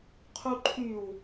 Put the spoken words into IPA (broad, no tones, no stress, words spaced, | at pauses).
qʰuǃʰyw